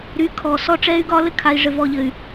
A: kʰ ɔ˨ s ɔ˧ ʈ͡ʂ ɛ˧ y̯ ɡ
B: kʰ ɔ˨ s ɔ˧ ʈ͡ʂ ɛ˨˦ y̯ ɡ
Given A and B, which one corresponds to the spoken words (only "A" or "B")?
A